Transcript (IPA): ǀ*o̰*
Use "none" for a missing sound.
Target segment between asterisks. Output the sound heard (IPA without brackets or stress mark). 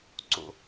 o̰